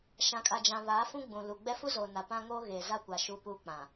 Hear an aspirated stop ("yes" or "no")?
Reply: no